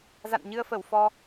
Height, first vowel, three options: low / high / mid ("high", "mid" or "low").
low